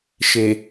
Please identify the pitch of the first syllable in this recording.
low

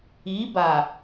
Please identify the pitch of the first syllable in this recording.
rising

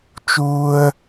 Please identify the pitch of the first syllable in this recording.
high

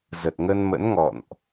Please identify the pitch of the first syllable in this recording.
low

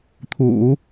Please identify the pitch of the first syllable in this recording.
low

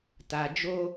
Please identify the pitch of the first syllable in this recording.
low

